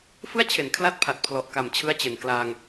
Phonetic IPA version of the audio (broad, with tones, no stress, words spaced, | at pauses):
fɯ˥˩a̯t͡ɕʰe˩˦n kʰla˥˩t̚pʰa˨˩t̚pʰlɔ˨˩ʔ ka˨˩mt͡ɕʰɯ˦˥a̯t͡ɕe˨˩n klaː˧ŋ